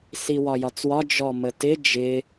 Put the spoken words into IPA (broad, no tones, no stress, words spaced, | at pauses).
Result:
siwɒjɒt͡swɒ d͡ʒɔmətɪ d͡ʒɪ